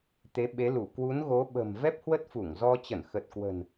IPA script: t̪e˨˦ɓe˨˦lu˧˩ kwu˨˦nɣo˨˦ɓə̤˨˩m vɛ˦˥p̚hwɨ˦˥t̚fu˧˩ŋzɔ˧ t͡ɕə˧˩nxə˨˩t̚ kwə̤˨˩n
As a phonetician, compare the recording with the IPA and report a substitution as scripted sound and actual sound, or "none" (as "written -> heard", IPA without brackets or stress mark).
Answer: ɨ˦˥ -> ə˦˥